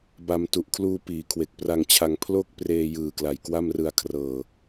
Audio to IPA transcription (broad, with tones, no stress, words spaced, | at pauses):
ba˧m tu˨˩ʔkʰluː˧ piː˩˦kʰwe˨˩k̚pra˧ŋt͡ɕʰa˧ŋ pʰlo˥˩k̚ preː˧jɯː˨˩kla˨˩j kwa˥˩mrɯ˧a̯kʰrɤː˨˩